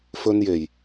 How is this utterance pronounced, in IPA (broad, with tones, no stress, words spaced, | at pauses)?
fɵ˥nje˨˩j